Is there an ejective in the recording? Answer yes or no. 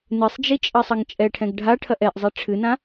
yes